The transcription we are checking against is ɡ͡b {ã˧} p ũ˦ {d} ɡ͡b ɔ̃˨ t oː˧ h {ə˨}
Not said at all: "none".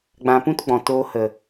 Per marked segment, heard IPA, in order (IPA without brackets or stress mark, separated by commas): ã˧, t, ə˨